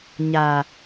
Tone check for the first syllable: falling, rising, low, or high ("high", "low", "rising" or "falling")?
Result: low